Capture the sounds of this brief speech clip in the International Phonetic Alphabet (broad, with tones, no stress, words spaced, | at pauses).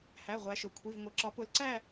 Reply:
hæ˩˧˩ ʁʷæ˨˦ʃʊ˩˧˩ kʷʰi˩˧˩vŋʷɪ˩˧˩ ǁɒ˨˦pʊ˨˦lǀæ˦˨